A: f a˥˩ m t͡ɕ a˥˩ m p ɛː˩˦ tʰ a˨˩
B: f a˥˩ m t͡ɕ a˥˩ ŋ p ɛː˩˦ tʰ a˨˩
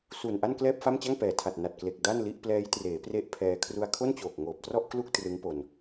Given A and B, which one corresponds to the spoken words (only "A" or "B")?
B